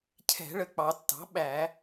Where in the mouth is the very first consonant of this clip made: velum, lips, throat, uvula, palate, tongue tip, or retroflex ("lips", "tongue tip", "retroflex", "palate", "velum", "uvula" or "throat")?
palate